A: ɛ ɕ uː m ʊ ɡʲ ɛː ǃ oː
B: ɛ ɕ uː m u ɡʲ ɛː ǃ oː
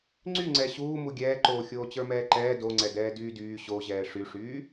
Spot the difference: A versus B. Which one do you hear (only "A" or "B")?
B